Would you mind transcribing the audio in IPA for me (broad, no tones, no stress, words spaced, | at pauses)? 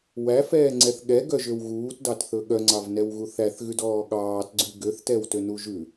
wæfɛːŋ͡ǀɛθ ɠɛɡœʒøw ɣuːtdɑtθɵ ɠœŋ͡ǀɑvnɛwɣu θæθɣʉdɔː ɠɑːtɡ͡ǀʉ ɡøθtɛwtønu ʒʉ